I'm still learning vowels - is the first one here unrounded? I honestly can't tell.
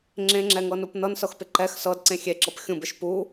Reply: yes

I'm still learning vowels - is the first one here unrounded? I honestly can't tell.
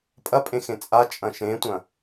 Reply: yes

